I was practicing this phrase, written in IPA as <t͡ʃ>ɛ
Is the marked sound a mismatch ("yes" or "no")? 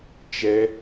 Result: no